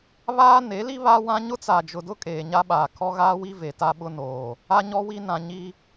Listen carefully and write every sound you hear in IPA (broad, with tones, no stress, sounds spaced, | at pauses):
β aː˦ n e˨˦ l i˦ β a˦ w ã˦ ɲ ʊ˦ t͡s a˨ d͡ʒ ʊ˨ d ʊ˦ kʼ eː˨ ɲ a˦ ɓ aː˨ kʰ ɔ˦ ɣ aː˦ w i˦ v e˨ t a˦ ɓ ʊ˦ n oː˨ | a˦ ɲ ɔ˦ w i˦ n ã˨ ɲ i˦